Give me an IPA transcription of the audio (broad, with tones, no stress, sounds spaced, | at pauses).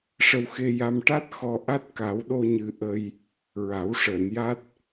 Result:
ʂ ə˧ w x e˧ j a˧ m ʈ a˦˥ t̚ x ɔ˧ ʔ a˦˥ t̚ k a˨˩˦ w ɗ o˧ ɲ ɨ˨˩ ʔ ə˧ j | ɹ a˨˩˦ w ʂ əː˨˩˨ n j a˦˥ t̚